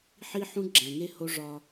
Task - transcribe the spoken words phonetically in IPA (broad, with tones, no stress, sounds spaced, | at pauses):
ħ i˦ ħ ũ˦ ɡ͡ǁ æ̃˨ ŋ e˦ h o˦ ʐ ɒ˦